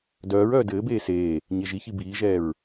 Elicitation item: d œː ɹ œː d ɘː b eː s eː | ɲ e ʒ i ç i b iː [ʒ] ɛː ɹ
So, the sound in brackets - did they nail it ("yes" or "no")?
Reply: yes